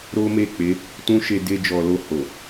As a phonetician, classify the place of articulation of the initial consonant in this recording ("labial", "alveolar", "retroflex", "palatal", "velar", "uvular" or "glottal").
alveolar